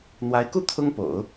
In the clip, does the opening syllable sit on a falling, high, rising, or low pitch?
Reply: rising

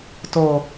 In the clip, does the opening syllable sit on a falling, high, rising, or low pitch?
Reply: low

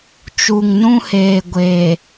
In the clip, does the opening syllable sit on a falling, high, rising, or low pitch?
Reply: low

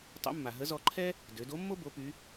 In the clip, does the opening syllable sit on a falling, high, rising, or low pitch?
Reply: rising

